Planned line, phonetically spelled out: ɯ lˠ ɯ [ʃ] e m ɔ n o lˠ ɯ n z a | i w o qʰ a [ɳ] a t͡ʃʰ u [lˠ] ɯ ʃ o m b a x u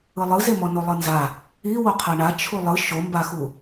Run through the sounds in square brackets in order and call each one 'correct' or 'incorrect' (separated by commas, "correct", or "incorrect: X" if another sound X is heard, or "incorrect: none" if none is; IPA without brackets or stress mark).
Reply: incorrect: z, correct, correct